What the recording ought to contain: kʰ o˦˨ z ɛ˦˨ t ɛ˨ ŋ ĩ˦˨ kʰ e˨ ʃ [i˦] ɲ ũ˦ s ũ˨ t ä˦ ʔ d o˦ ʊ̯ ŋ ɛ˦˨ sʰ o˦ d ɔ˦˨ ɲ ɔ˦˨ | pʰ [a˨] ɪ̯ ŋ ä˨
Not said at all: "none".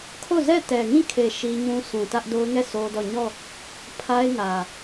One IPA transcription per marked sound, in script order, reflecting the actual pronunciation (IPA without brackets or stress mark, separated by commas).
i˦, a˦